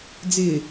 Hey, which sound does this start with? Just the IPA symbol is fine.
d͡z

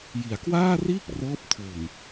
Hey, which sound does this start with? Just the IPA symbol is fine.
j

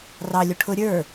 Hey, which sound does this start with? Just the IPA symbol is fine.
r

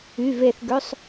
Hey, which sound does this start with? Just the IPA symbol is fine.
y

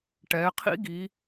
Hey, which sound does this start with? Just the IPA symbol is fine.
ʈ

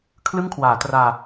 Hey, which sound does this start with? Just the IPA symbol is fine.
kʰ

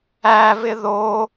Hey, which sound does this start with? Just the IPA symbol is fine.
æ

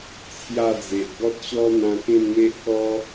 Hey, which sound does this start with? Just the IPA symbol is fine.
t͡sʰ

